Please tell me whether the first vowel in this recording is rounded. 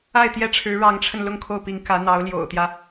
no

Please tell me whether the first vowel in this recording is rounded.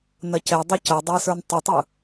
no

